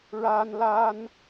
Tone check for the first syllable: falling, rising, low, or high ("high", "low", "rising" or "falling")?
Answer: high